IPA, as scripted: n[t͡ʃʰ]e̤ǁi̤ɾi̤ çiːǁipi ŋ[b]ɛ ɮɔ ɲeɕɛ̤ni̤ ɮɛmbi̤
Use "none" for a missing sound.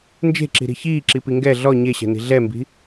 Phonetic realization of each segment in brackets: d͡ʒ, ɡ

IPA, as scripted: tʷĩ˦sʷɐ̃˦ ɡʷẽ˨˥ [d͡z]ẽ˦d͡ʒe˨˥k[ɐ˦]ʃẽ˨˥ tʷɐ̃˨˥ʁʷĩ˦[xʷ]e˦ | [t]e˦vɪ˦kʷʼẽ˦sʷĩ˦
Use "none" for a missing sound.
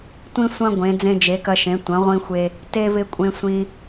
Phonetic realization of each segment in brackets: d͡z, ɐ˦, xʷ, t

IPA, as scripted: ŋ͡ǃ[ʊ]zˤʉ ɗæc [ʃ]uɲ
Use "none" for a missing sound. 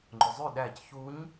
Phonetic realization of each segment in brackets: ʊ, ç

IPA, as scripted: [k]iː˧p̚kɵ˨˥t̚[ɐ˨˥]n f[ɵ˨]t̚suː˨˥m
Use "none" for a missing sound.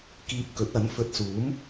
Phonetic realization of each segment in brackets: k, ɐ˨˥, ɵ˨

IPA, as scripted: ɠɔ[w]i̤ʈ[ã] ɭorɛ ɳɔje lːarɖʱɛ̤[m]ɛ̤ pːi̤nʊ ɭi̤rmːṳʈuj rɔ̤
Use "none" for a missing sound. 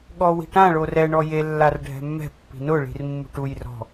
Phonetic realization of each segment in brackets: w, ã, mː

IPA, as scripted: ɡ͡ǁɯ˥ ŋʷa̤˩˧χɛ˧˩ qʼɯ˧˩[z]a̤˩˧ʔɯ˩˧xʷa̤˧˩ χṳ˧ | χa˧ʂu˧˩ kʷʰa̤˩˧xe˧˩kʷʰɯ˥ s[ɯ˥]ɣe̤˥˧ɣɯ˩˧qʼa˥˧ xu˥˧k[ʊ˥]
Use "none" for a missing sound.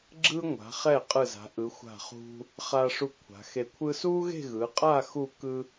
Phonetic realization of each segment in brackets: z, u˥, ɯ˥

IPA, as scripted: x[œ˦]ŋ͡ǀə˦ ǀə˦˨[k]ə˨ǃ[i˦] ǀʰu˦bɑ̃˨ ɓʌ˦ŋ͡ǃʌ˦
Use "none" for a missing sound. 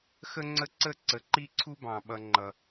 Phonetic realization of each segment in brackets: ə˦, ǀ, i˦

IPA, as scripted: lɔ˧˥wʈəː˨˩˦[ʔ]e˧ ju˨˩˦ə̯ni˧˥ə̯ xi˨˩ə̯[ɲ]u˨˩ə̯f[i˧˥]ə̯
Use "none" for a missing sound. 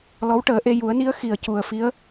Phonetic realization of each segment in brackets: ʔ, c, i˧˥

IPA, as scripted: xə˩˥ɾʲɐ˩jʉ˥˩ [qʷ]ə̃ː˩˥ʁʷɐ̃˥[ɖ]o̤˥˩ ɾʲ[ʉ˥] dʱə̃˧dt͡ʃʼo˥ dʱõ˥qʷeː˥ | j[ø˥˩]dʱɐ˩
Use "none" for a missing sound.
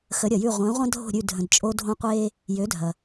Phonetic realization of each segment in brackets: ʁʷ, dʱ, ʉ˥˩, ø˩˥

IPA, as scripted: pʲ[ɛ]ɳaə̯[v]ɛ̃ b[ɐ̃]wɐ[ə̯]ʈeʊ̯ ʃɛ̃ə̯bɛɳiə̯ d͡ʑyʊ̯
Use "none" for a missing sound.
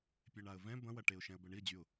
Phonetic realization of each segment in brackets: e, v, ɐ̃, none

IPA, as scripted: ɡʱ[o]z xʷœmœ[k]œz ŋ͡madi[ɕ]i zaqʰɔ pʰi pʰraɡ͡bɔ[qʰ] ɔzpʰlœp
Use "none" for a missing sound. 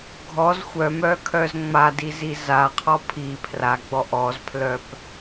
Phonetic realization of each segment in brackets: ɔ, kʰ, z, ʔ

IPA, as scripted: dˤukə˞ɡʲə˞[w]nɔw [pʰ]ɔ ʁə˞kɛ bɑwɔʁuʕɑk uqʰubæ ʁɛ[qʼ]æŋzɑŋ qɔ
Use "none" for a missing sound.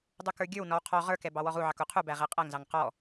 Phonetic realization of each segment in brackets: w, qʰ, qʼ

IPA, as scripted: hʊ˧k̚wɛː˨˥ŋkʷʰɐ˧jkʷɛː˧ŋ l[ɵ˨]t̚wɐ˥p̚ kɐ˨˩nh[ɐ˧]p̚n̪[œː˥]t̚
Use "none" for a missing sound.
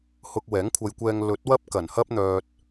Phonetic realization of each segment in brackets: ɵ˨˥, ɐ˥, œː˧

